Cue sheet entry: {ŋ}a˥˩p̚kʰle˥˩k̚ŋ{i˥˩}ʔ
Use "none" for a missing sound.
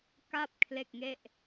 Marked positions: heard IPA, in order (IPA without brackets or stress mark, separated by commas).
k, e˥˩